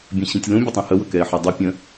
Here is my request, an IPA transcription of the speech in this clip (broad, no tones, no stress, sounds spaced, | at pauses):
bʲ ə̃ ɕ ĩ tʲ l ũ bʲ ə tˤ ĩ h ə w ɵ k ɛ ɪ̯ ħ e dˤ u pʲ ə̃